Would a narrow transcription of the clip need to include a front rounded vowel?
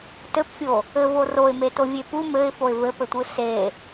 no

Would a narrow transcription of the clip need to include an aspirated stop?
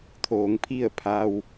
yes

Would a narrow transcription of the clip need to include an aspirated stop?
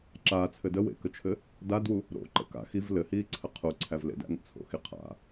yes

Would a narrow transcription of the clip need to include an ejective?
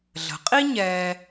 yes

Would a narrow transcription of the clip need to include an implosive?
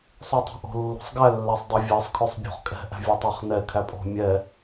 no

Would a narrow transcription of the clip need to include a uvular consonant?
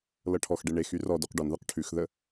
yes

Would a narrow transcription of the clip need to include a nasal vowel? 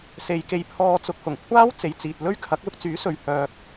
no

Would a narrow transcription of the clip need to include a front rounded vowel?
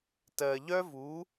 yes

